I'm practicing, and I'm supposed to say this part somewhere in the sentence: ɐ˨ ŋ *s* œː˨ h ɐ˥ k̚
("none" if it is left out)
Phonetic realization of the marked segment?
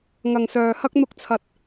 s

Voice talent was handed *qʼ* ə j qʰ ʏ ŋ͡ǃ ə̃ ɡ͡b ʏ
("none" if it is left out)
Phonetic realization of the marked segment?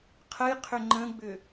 qʰ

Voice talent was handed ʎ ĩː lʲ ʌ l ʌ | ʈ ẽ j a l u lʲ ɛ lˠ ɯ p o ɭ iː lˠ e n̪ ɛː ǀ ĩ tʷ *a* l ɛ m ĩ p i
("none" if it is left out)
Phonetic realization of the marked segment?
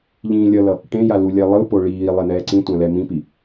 ã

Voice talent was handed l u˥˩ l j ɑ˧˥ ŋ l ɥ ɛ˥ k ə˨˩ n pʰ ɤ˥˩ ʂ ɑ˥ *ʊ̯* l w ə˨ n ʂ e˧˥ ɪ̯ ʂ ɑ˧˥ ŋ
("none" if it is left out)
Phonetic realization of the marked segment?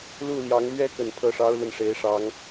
ʊ̯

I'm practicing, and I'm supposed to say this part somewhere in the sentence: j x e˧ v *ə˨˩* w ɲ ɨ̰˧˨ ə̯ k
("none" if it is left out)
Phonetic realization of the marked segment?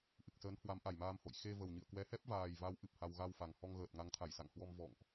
ə˨˩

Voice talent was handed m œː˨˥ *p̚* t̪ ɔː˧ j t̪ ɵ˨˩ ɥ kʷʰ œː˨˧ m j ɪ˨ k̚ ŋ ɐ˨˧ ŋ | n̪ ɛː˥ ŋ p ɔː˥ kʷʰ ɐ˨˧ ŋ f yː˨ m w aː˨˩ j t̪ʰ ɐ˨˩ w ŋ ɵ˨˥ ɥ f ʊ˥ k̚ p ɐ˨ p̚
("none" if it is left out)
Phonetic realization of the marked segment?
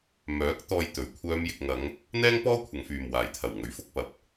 k̚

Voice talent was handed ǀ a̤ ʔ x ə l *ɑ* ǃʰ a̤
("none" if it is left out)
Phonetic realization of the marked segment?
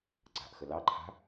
ɑ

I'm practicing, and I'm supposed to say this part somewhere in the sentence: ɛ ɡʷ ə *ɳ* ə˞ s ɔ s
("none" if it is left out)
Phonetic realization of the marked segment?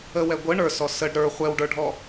ɳ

